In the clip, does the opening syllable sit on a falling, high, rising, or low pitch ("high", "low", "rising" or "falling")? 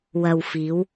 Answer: low